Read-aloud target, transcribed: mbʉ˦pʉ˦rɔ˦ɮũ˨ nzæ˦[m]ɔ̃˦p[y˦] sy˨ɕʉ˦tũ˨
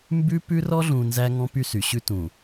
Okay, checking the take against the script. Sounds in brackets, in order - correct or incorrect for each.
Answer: incorrect: ŋ, correct

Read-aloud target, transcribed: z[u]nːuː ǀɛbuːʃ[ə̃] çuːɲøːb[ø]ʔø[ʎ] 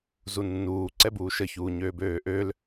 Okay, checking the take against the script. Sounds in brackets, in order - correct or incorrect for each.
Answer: correct, incorrect: ə, incorrect: øː, incorrect: l

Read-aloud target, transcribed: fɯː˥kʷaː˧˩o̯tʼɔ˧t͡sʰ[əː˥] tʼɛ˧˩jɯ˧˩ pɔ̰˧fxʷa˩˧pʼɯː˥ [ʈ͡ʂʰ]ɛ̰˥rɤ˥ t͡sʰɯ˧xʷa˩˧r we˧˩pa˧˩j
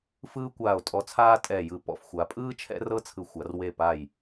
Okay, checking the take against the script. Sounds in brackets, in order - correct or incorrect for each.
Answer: incorrect: aː˥, incorrect: t͡ʃʰ

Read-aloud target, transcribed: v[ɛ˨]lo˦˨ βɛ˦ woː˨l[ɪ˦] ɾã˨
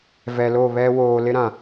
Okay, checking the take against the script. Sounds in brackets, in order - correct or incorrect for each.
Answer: correct, correct

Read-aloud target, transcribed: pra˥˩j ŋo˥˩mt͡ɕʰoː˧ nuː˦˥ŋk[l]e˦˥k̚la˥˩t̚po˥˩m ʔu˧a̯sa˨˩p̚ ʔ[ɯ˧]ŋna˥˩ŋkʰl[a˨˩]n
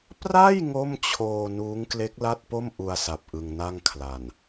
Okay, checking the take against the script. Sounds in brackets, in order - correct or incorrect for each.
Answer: correct, correct, correct

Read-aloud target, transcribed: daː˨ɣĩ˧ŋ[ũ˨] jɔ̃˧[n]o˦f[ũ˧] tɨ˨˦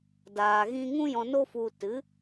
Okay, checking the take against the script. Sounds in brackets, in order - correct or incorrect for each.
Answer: incorrect: ũ˦, correct, incorrect: u˧

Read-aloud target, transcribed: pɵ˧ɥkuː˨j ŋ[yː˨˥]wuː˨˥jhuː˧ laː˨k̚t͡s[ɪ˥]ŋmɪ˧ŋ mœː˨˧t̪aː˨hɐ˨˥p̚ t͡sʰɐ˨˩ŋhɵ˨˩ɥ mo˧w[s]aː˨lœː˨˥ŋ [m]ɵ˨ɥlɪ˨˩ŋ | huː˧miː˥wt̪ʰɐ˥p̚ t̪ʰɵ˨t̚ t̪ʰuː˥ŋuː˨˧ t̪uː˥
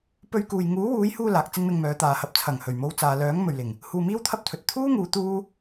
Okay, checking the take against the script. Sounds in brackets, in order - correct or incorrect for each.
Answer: incorrect: uː˨˥, correct, incorrect: t͡s, correct

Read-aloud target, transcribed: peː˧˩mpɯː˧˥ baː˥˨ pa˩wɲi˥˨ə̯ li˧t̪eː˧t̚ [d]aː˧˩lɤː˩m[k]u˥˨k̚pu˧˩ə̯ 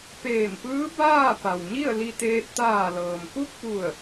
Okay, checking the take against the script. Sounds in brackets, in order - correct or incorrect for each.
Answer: incorrect: t̪, correct

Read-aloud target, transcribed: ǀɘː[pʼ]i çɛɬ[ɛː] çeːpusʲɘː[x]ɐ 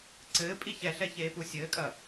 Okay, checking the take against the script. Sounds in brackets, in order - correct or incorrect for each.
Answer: correct, incorrect: ɛ, incorrect: kʼ

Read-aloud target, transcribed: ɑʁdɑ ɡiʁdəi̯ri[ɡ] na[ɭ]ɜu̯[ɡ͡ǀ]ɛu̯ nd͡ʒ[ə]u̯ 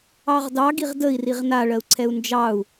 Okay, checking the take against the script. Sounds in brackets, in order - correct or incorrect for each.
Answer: incorrect: ʁ, correct, incorrect: ǀʰ, incorrect: ɑ

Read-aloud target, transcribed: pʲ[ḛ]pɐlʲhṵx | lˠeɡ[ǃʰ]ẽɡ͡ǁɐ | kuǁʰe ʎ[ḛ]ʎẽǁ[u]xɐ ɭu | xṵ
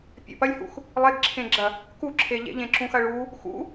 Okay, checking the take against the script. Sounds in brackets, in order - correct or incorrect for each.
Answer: incorrect: ɛ̰, incorrect: ǁʰ, correct, incorrect: ũ

